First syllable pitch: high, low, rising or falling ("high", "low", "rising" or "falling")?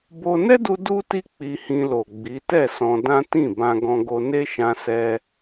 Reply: high